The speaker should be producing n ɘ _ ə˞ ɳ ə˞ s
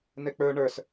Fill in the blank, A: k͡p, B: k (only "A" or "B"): A